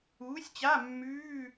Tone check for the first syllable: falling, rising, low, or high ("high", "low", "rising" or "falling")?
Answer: rising